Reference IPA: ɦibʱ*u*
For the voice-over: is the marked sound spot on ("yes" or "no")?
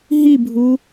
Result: yes